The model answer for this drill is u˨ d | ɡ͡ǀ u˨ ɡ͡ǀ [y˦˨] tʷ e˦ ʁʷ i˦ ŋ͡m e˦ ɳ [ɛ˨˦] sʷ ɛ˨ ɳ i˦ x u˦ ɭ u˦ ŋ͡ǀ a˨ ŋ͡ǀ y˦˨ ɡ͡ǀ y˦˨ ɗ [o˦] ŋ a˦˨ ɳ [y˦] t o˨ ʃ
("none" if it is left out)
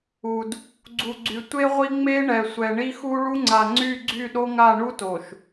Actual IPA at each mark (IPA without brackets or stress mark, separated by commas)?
y˨, ɛ˨, o˦, u˦